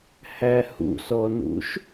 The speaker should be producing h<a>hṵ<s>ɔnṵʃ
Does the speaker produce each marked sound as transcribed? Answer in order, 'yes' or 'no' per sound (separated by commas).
no, yes